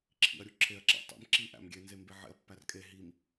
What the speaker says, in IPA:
ǁʰ ḭ ɐ̯ ɾʲ u ǁʰ e ɐ̯ ǁ æ̰ tˤ ḭ m ǁ i ʔ æ̰ m ɡʲ e n z e m b e ʕ ḛ ɐ̯ pː æ r kʼ e ɦ i m

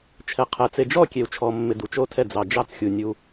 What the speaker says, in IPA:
t͡ʃʰ ɛ˧ qʰ ɛ˧ t͡s e˧ d͡ʒ ɔ˥˧ kʲ e˧ u̯ t͡ʃʰ ɔ˧ mː ɪ˧ d u˧ t͡ʃ o˥˧ tʰ ɛ˥˧ d͡z ɑ˧ d͡ʒ ɑ˥˧ t͡s xʲ u˧ nʲ u˧

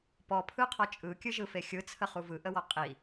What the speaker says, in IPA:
p ɔ pʰ ɯ qʰ ɔ t͡ʃʼ ɯ kʲ ɨ ʒ ɯ f e xʲ ɯ t͡sʰ ə χ u v ɯ ʔ ə w ɔ qʼ i

